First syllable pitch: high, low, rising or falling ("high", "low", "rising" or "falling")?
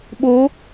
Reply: rising